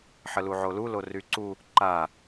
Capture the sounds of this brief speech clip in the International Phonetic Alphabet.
ħ ə l u ʕ o l u l o r y ǀ u | ǃ a

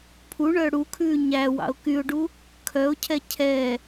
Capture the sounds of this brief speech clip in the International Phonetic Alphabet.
pʰ u ɳ œ ɽ u kʰ ʉː ɲ æ w ɑ̰ ʊ̯ k y ʊ̯ ɖ u | kʰ œ ʊ̯ cʰ ɛ cʰ ɛ

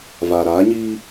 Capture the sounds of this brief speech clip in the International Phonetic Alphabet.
v aː˨ ɾ aː˨˦ ɲ iː˦

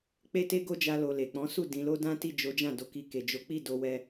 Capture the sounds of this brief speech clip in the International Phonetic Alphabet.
k͡p e˦ t e˦ ɡ o˦ d͡ʒ a˧ l o˨ l e˨ k͡p ɔ̃˨˦ s u˦˨ d ĩ˨˦ l o˦ d ã˦ t i˦˨ d͡ʒ o˨˦ d͡ʒ ã˦˨ d o˨˦ k i˧ k e˨ d͡ʒ o˨˦ k͡p i˦˨ d o˧ w ɛ˧

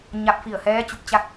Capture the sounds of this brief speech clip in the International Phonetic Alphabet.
ɲ a˧ p̚ f i˧˩ ə̯ h ɛː˧˥ t͡ɕ u˧˩ p̚ t͡ɕ a˥˨ k̚

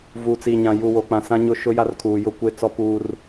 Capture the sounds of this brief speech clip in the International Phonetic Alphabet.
v uː˨ t͡s i˨ ɲ ã˨ j u˨ w o˨ k͡p ã˨ s ã˦ ɲ ʊ˦ ʃ ʊ˦ j a˦ r kʰ uː˨ j ʊ˦ kʷ e˦ t͡s ɔ˦ p uː˦ r

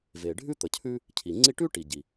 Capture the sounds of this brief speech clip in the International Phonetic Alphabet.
v e˩ ɖʱ ʉ˥ t̪ ə˩ cʰ ʉ˥ | cʰ i˩ ŋ͡ǀ i˦ ʈ ʉ˥ ʈ i˩ ɟ i˩

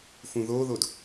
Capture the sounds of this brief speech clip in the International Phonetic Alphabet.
f ũ ð oː ð o d

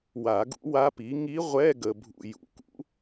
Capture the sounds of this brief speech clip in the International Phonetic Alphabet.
w a˨˩˦ ɡ ṵ˧˥ w a˧˥ p i˩˥ ŋ i˧˥ ʁʷ ɛ˧˥˧ ɡ ə˨ bʱ ṵ˨ j ṵ˨˩˦ k ṵ˩˥

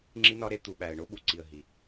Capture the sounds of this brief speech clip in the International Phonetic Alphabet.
ŋ͡ǁ i˦ n ɒ˦ ɾ e˦ t̪ u˨ ɓ æ˨ ə̯ ɳ o˦ ɓ u˨ ǀ i˨ ə̯ ɦ i˨

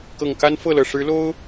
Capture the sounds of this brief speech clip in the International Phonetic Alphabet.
k ɤ˨˩ ŋ k a˦ n f ɤ˥˨ l ɤ˨˩ ʂ ɻ̩˨˦ l o˦ ʊ̯

